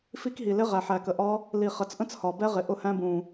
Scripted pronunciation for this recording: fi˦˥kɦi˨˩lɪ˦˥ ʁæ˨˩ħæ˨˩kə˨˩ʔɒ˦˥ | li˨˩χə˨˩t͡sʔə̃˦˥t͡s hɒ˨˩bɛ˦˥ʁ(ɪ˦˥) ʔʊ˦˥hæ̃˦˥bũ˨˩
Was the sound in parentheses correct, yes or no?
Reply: no